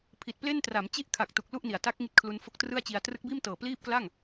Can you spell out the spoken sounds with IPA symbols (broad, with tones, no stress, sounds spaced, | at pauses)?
pʰ i˨˩ t̚ p l e˥˩ n t r a˩˦ m t͡ɕ i˥˩ ʔ kʰ a˨˩ k̚ t u˨˩ k̚ l u˥˩ ʔ n i˩˦ a̯ t a˦˥ k̚ ŋ i˥˩ t̚ kʰ l u˧ n f o˥˩ k̚ t r ɯ˥˩ a̯ t͡ɕ i˧ a̯ t r ɯ˦˥ k̚ b iː˥˩ m t ɤː˨˩ p l iː˥˩ p̚ k l a˥˩ ŋ